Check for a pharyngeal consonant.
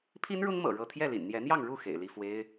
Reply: absent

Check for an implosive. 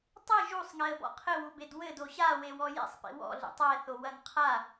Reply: absent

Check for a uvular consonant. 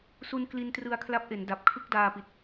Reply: absent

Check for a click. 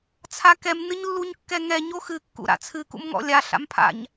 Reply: absent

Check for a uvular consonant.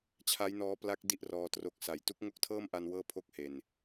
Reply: absent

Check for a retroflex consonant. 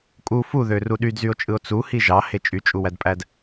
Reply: absent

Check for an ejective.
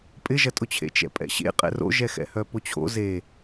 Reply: present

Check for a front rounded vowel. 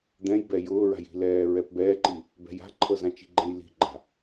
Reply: absent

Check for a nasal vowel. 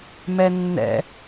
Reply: absent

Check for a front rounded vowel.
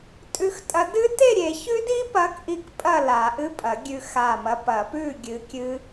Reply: absent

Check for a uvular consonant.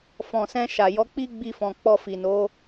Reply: absent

